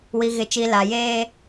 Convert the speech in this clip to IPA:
w i˨ ɣ ɪ˨ t͡ʃ i˨ l a˨ j eː˦

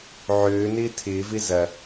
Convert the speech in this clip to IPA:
ʕ øː n ɪː tʰ ɪː v ɪ z ɐ

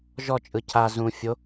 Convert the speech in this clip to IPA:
ʒ ɔ t͡ʃʼ ɯ cʰ a z ũ fʲ o

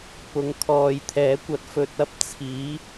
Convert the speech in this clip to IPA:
p ʊ˨˥ ŋ kʰ ɔː˨ j t̪ʰ ɛː˨˥ kʷ ɐ˨˥ t̚ f ɵ˨ t̚ ɐ˥ p̚ t͡sʰ iː˨˥

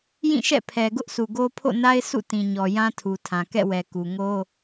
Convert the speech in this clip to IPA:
j ĩ˦˨ ʃ ɛ̰˦˨ pʰ ɛ˨ ɡ ʊ˦ ʔ s u˨ ɡ o˦ pʰ o̰˦˨ n a˦ ɪ̯ sʰ ṵ˦˨ t ĩ˨ ɲ ɔ˨ j ã˦ tʰ u˨ tʰ ã˨ k ɛ̰˦˨ w ɛ˨ k u˨ ŋ o˦

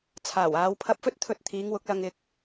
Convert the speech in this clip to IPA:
t͡sʰ aː˨˩ w aː˨˧ w pʰ ɐ˧ p̚ f ɵ˥ t̚ t̪ʰ ɵ˧ t̚ t̪ʰ iː˨˧ ŋ w ʊ˨˥ k̚ l ɐ˧ ŋ ɪ˧ k̚

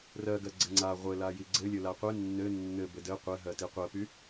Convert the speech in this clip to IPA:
r ɜ ɡ ɜ ɡ͡ǀ ɘ ŋ͡ǀ a ʁʷ ɘ l a j i ɡ͡ǀ ɘ lʲ ɘ l a qʷ ɘ nː ɘ nː ɘ b ɘ d ɘ qʷ ɘ ɦ ɜ t i qʷ ɜ p y

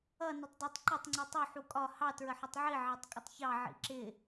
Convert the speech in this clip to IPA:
ʌ n ə tˤ dˤ ʊ tˤ ǃ ʌ tˤ ŋ͡ǀ i tˤ u ħ u kʼ ɒ h ɑ t ɹ ə ħ ʊ tˤ ʕ i ʕ ɑ tˤ kʼ ɪ tˤ ç ɑ ʕ ḭ ǁ ɪ

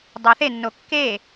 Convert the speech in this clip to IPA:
dˤ æ θ e nː o kː e

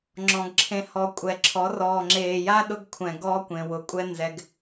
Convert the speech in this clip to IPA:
ŋ͡ǁ ɔ̃˨ ɡ ǁʰ ẽ˧ h ɔ˧ kʷʼ ɛ˨ ǁʰ ɔ˨˦ r ɔː˨ ŋ͡ǁ eː˨ j a˦ ɗ ʊ˦ ɡ kʷʰ ɛ̃˨ ɡ ɔː˦ kʷ ẽ˨ w ʊ˨ kʷʼ ɛ˦ n z ɛ˧ ɡ

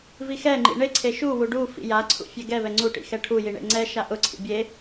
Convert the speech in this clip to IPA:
v i x ɛ ŋ͡ǃ ḭ ɳ e ǀʰ e ʃ u w u ɖ u f ḭ j a ǀʰ ṵ fʲ ɛ ɡ ɛ v ɛ ŋ͡ǀ u ʈ ḭ x ɛ ʈʰ u j i ɳ ḛ ŋ͡ǀ ɛ ʃ a ʔ ʊ ǀʰ ḭ bʲ e

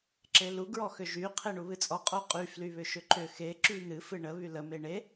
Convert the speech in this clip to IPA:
ǁ e l u ɡ ɹ ɔ x ʏ ʒ y qʰ e ɳ u β ɨ t͡sʼ ɔ qʼ o qʼ y f l y β ʏ ʃ ʏ ǃ ʏ x e ǁ y n̪ ɨ f ɨ ɳ ə β y l ə m e ɳ e

